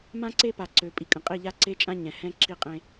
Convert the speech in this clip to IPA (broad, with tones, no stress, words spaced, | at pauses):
mã˦ǀe˦ pa˨ǀø˨pʼi˨kʼə̃˨ qʼi˦˨ʎa˦ ǀe˦t͡ʃʼã˦ ɲɛ̃˨hɛ̃˦ǁi˦qʼẽ˦